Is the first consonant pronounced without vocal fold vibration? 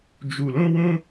no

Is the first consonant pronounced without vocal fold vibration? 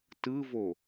yes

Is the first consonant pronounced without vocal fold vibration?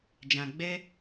no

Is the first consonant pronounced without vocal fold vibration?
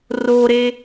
no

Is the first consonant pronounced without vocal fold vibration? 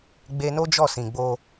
no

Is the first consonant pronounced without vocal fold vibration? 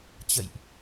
yes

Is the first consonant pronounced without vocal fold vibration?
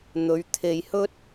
no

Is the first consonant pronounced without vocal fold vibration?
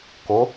yes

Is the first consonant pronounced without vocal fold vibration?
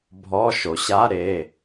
no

